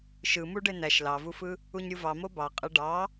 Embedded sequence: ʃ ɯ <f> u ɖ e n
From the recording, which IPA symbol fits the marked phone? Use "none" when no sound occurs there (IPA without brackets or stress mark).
m